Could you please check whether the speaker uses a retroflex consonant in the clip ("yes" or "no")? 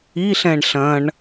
yes